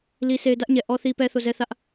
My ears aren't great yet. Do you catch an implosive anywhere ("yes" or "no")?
no